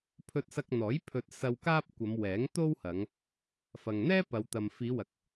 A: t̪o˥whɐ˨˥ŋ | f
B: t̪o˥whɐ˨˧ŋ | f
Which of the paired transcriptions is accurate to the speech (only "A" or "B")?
B